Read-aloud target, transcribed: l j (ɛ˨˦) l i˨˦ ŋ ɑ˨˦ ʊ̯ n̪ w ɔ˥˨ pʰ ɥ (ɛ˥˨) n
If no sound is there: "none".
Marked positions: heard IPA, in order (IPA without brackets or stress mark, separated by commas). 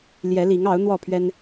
ɛ˨˦, ɛ˦